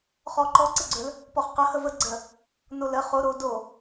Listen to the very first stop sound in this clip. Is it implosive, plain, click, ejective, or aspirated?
click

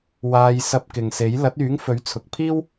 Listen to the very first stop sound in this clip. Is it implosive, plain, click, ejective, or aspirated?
plain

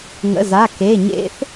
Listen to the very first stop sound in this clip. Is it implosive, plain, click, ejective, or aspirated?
plain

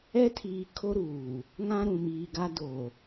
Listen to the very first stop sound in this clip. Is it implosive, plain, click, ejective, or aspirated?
aspirated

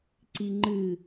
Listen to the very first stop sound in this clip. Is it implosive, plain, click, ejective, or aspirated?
click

